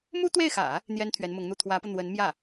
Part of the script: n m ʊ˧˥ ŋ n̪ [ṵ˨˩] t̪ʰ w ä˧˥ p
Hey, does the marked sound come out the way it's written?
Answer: no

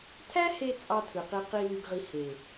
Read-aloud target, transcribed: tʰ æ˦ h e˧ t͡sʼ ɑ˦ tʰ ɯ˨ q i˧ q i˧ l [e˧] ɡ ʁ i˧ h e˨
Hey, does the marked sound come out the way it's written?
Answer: no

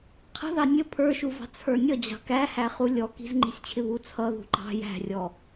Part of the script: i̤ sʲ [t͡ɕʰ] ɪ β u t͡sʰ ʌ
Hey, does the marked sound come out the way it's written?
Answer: yes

